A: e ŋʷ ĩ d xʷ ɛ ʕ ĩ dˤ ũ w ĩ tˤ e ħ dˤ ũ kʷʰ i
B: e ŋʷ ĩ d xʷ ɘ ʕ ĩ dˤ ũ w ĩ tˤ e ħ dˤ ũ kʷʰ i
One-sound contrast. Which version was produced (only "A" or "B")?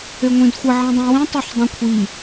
B